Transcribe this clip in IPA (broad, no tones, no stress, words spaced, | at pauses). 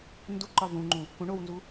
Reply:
nduǃɒ vũŋ͡ǃũ | kũ ɳownzu